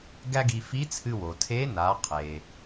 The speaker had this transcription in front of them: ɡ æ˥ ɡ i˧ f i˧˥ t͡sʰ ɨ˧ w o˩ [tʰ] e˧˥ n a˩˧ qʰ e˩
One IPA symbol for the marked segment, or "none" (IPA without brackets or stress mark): tʰ